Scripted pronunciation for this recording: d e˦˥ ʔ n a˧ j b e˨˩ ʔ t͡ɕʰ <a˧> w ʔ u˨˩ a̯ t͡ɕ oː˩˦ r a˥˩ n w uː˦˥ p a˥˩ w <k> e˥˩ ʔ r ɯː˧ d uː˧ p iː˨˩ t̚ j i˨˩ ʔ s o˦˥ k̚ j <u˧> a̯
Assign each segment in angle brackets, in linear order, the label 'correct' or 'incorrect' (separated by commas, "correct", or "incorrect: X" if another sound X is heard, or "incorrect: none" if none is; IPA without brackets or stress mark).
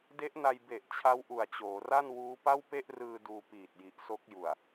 incorrect: a˦˥, incorrect: p, incorrect: u˨˩